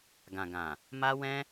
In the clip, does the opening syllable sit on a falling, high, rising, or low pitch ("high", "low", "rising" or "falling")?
low